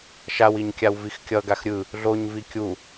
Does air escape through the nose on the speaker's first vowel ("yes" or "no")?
no